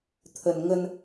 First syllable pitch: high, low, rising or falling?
low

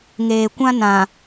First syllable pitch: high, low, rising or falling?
low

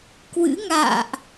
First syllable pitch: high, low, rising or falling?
rising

